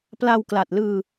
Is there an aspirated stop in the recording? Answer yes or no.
no